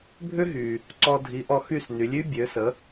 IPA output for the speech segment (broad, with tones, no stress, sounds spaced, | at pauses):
bʱ ʏ˥ ɦ y˩ | ǀ ɔ˧ dʱ i˩˥ ʔ ɔ˧ x y˥˩ s n y˩˥ lʲ y˥ bʲ ø˩˥ s ə˩˥